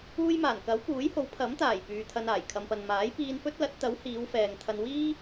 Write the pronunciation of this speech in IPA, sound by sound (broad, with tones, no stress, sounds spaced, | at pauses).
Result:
uː˥ j m aː˨˩ n k ɐ˨˥ w p uː˨˥ j h o˨˥ w pʰ ɐ˨˥ m t̪ aː˨˩ j p yː˨ t̪ʰ ɐ˧ n aː˨˩ j kʰ ɐ˨ m p ɐ˨ n m aː˨˥ j p iː˧ n f ɵ˥ t̚ l ɐ˨˥ t̚ t̪ ɐ˨˥ w h iː˨˧ w f ɛː˨ ŋ t̪ʰ ɐ˧ n w iː˥